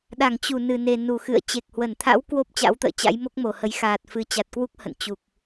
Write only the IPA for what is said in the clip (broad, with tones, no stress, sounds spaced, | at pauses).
ɗ a˧˩ ŋ t͡ɕ u˧˩ n ɨ˧˩ n e˨˩ n u˧˩ x ɨ̰˧˨ ə̯ t͡ɕ e˨˩ k̚ h w ə˧˩ n t̪ʰ a̰˧˥ w k w o˦˥ p̚ t͡ɕ a̰˧˥ w t̪ ə̰ː˧˨ t͡ɕ a̰˧˥ j m o˦˥ k̚ m o˨˩ h ə˨˦ j x aː˨˩ t̚ f ɨ˨˩ t͡ɕ a˨˩ t̚ k w u˦˥ k̚ h ə̰˧˨ n t͡ɕ u˨˩ k̚